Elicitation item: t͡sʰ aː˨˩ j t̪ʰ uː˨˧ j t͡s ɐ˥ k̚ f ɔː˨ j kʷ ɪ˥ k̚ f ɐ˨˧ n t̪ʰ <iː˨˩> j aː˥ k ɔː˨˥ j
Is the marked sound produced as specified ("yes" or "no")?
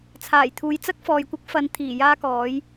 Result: yes